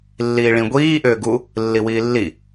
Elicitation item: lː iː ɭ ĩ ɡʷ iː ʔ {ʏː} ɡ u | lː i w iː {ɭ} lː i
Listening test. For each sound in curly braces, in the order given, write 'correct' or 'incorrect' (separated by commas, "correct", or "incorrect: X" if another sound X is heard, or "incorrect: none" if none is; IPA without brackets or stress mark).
correct, incorrect: none